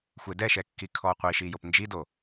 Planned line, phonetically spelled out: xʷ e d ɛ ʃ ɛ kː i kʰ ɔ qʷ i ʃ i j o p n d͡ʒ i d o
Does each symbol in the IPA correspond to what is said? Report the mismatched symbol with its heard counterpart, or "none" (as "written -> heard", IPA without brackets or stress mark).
none